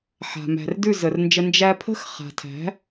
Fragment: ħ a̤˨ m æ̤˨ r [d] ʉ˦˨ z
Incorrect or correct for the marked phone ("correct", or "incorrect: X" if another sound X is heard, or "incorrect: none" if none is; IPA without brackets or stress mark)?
correct